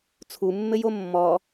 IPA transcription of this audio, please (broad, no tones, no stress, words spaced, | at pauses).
t͡sʰumːɘjo mːɔ